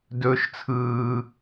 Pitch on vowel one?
high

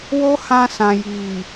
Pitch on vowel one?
high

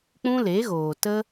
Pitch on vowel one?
high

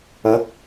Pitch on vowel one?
rising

